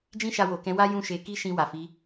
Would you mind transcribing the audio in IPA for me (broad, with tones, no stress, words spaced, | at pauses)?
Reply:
d͡ʒĩ˦ʃa˧wo˨kɛ̃˨˦ wa˦jũ˦˨ ʃe˧ ki˦ʃĩ˧ wa˨fi˨˦